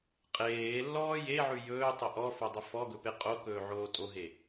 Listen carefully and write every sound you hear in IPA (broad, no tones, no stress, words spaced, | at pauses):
qʼeːlːɔː jeʕʉ jɵːtˤɵ ʔɔfodˤə fɔɡɵpe qʼokɵːʕoː tʼoɦe